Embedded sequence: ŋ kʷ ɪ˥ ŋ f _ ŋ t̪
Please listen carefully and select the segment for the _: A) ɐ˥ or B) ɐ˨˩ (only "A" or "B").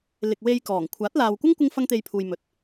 A